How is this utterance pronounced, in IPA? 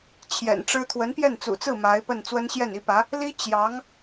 t͡ɕʰjɛ̰˨˩nʈ͡ʂɻ̩˥ t̪ʰwə˧˥npjɛ˥˩nt͡sṵ˨˩t͡sɹ̩˥˩ ma˧˥ɪ̯pə˥˩n t͡swə˥nɕjɛ˥˩ni˥pä˧˥ | li˥ t͡ɕjɑ˧˥ŋ

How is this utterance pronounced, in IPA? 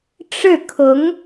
ʈ͡ʂɻ̩˥˩kʰʊ˧˥ŋ

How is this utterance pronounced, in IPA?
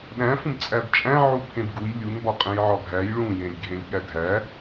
ɗæ̃ fũbt͡sʼæbt͡ʃʼæ̃ ʕupʰẽbɡuj lʲun bɒqʼẽjʕɒɡʱæj ɭũ jẽlʲɡʱẽlʲɠædʱæ

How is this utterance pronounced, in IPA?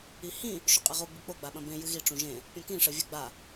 ihĩ | ʃuqʼiʁu ɡ͡bɨk͡po ɡ͡baɓɐ̃bẽ jɨɣiʈ͡ʂũ ʒẽ | pʲɔ̃kĩ ʂɘvʲɨ ɡ͡ba

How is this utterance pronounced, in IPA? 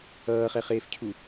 ʌːχɛχeːfcʰu

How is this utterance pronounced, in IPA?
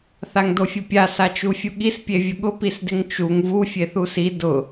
θaŋdofʲʊpʲa sat͡ʃufʲuɠis pʲevʲʊɠʊ pisdɪŋt͡ʃuŋ vu fʲeθusi dʊ

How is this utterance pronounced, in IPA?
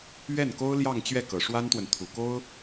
ɥɛ˥˩nko˥ʊ̯ljɑ˥˧ŋ t͡ɕɥɛ˥˩kɤ˨˩ʂwa˥nt̪wə˨n t̪ʰu˨˩ko˥ʊ̯

